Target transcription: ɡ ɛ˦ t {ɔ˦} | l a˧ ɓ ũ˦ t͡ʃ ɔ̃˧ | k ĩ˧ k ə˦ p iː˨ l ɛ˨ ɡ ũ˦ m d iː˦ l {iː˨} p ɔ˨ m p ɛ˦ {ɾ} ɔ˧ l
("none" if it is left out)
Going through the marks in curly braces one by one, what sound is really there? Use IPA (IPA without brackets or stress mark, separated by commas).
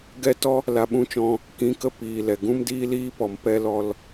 ɔ˦, iː˦, l